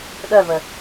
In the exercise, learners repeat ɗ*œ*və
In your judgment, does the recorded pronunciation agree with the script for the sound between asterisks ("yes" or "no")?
yes